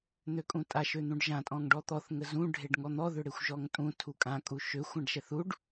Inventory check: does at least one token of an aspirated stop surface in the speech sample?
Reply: yes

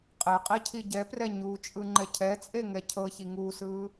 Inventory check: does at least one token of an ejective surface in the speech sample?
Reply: yes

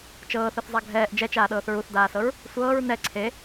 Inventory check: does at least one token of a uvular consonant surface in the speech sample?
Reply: no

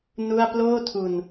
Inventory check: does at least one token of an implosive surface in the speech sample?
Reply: no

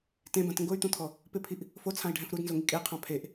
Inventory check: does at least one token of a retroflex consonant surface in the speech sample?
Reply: yes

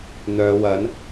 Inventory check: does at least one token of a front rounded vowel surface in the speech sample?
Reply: yes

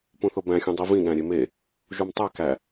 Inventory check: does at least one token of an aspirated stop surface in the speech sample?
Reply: no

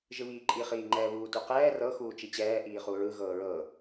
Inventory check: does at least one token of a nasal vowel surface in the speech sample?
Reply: no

